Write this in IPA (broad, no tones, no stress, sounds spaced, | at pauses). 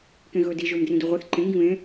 k ẽ ɣ ɵː d i ʒ ɵː m d r ĩ d u ʁʷ ɛ θ ǃ ẽ ŋ ɡ ĩ β ẽ